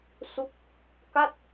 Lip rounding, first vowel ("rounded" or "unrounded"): rounded